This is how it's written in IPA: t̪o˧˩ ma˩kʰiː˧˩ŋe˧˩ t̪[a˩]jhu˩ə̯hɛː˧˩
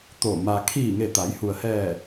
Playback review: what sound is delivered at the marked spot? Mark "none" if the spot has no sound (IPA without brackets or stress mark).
a˩˧